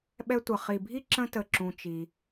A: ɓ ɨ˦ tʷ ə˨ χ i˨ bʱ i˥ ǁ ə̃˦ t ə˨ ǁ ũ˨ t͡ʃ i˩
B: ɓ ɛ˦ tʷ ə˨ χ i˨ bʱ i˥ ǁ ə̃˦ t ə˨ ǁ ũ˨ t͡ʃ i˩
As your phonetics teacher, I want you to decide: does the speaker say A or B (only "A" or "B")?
B